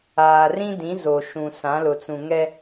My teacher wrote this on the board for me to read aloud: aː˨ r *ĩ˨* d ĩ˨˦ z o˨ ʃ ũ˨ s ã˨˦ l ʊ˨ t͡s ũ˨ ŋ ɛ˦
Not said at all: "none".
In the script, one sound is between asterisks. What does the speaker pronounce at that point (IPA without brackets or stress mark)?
ĩ˦